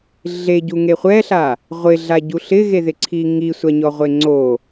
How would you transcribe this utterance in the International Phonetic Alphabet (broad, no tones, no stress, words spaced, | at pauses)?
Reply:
ɮeɟuŋe χʷɛɬa | ʁʷɪɮaɟu ɬɪɣeðɪǀʰi ŋisʷaɲɔʁʷe ŋ͡ǀo